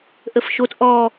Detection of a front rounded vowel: absent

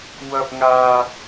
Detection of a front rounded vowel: absent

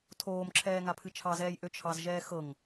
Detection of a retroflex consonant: absent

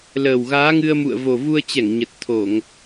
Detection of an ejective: absent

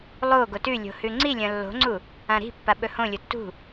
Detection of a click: present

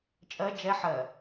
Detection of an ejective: present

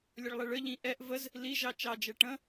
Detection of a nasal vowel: present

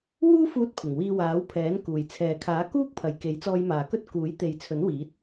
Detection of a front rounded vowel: absent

